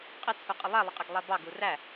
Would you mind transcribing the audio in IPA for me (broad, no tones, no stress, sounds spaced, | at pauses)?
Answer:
qʼ ɪ t͡sʰ u qʼ ɪ lˠ ɛ lˠ ɪ qʼ ɛ ɡ lˠ ɛ b ɑ ɡ u r æ